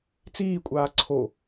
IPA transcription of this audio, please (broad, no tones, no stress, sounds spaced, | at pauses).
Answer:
t͡s iː kʷʼ aː ǀʰ o